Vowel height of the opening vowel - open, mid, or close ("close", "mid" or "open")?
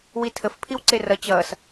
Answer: close